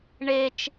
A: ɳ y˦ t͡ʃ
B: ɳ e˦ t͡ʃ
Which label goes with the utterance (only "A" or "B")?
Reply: B